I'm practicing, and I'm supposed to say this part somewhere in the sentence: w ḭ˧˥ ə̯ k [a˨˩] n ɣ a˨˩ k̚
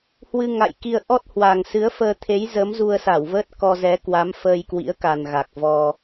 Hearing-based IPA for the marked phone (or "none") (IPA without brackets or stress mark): a˨˩